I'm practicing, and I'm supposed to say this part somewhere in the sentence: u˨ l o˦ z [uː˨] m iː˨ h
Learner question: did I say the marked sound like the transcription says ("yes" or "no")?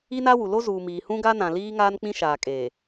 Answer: yes